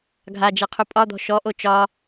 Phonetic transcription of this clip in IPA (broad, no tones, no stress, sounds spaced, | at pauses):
ɡʱ a d͡ʒ e qʰ u pʼ ɒ d̪ ɔ̤ ʃ ɔ ʔ o t͡ʃ ɒ